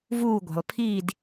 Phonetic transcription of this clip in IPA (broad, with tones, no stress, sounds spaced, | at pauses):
v uː˥˨ ɡʷ e̤˩ lˠ pʰ iː˥˨ d